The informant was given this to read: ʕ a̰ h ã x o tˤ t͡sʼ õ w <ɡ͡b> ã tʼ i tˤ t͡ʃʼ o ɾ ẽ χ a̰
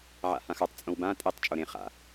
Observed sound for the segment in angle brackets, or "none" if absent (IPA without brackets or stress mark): b